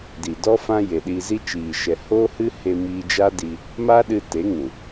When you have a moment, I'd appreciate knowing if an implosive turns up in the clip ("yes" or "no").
yes